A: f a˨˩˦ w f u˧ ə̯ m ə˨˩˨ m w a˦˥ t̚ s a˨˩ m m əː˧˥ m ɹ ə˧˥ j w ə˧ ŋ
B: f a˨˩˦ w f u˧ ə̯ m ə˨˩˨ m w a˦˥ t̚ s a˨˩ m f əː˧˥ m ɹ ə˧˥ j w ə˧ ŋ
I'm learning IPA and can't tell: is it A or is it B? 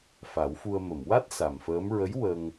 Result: B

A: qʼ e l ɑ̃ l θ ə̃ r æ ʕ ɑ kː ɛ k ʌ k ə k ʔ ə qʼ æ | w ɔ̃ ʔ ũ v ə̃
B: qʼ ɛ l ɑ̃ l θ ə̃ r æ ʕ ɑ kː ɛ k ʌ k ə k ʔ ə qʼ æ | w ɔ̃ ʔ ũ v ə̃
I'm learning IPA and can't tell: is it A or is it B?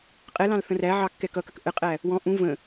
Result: B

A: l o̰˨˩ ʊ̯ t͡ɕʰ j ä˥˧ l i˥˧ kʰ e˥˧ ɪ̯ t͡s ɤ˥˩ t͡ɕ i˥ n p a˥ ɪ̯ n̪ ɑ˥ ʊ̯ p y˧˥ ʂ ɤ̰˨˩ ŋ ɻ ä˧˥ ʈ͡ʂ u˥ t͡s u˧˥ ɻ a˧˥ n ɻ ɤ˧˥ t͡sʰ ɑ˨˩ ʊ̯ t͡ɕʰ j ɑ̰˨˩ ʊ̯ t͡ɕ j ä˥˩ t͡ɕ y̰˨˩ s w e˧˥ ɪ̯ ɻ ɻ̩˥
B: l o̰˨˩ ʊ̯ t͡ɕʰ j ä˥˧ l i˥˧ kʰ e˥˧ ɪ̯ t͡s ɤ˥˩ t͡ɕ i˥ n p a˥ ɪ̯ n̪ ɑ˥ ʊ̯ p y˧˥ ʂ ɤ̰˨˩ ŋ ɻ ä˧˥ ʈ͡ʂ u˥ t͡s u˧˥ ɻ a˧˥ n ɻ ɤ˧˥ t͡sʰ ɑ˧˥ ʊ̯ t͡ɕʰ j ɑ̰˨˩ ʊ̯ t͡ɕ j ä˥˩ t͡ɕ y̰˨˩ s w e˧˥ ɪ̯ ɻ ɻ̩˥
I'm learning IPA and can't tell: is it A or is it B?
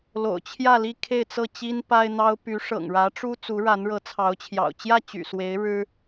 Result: B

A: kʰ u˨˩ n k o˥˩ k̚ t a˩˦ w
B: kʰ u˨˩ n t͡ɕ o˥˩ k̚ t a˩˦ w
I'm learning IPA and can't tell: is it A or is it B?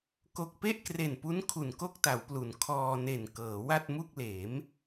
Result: A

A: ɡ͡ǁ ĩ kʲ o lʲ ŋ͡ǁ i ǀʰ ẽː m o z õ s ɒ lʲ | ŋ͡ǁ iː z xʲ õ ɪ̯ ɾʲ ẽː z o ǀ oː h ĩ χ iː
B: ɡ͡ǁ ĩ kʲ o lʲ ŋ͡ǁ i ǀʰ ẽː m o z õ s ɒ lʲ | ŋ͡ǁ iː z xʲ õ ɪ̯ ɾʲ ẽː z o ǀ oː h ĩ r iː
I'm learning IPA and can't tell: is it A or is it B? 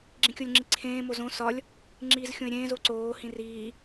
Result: B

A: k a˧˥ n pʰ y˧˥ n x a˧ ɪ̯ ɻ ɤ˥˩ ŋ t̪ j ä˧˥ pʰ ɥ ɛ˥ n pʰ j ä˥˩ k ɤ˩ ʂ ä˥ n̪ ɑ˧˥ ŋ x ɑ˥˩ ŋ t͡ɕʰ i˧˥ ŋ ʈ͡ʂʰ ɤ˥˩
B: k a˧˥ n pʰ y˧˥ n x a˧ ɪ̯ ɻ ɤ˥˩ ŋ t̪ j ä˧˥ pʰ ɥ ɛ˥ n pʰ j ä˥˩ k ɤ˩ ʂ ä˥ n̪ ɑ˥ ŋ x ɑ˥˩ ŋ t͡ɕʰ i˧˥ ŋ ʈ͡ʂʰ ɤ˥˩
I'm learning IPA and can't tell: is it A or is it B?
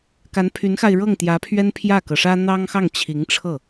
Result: B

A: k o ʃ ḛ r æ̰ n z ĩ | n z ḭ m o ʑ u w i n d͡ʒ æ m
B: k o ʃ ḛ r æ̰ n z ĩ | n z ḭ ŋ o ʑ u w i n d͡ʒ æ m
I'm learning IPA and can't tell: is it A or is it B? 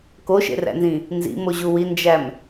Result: A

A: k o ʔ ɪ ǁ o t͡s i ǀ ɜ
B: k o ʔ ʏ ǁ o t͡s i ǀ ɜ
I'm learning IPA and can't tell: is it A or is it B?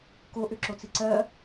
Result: B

